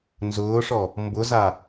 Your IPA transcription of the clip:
n z ʊː ʂ ɔ | m b ʊ z a

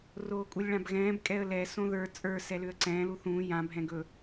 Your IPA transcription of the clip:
r oː kʼ u lʲ ɭ ã b ɣ ɛ̃ː b kʼ ɛ ə̯ l ɛ s õ ð ə˞ t͡sʼ ə˞ s ɛ l ʏ ə̯ ǀ ɛ̃ː l u θ ũː j ã bʱ ɛ̃ ɡ ɵ

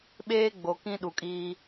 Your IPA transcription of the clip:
ɓ eː˦ ɡ͡b o˨ k ĩ˦ ɗ u˨ kʼ iː˦

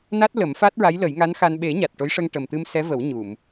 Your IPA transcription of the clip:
n a˦˥ t̚ l ə˨˩˦ m f a˦˥ t̚ ɹ a˧˥ j l ə˨˩˦ j ŋ a˧˥ n x a˧ n ɓ e˨˩˦ ɲ a˨˩ t̚ ʈ o˧˥ j ʂ ə˧ ŋ ʈ ə˨˩ m t̪ ɨ˧ m s ɛ˧˥ v ə˨˩˦ w ɲ u˨˩˨ m

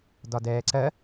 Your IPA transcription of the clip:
d ɒ d ɛː ǀ ɜ

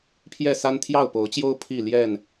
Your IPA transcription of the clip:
pʰ j ɛ˥˨ s a˦ n t̪ʰ j ɑ˥˨ ʊ̯ p o˨˦ ʊ̯ t͡ɕ j o˦ ʊ̯ pʰ i˥˨ l j ɛ˥˨ n

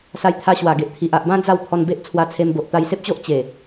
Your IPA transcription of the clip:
s a˧ j t̪ʰ a˧ ɕ w a˨˩ ɡ e˨ ʔ t̪ʰ i˨ ʔ a˨ ʔ b ã˦ d͡z a˥˧ w t̪ʰ ɔ˧ n b e˦ ʔ t͡sʰ w a˧ t͡sʰ e˧ m b o˨ ʔ t̪ a˧ j s e˦ p̚ t͡ɕ o˦ ʔ t͡ɕ e˨˩

